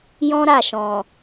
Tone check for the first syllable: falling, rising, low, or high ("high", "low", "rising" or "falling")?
high